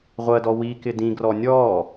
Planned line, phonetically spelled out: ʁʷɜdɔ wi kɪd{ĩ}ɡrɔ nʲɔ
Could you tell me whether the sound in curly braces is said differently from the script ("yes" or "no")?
no